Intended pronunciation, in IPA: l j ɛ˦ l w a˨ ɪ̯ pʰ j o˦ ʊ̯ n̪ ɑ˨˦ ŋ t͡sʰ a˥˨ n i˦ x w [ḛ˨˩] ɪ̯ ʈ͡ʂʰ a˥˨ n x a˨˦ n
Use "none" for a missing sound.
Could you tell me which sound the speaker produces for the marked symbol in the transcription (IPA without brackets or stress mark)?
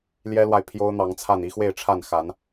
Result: e˥˨